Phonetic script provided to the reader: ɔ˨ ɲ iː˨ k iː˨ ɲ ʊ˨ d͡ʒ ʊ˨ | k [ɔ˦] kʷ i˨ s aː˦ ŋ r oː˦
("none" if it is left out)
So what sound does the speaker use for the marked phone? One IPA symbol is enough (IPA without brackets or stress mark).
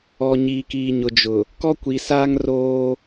ɔ˦